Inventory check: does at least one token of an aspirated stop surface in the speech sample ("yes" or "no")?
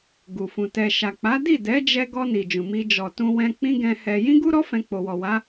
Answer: no